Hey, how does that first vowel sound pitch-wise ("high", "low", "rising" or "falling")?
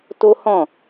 high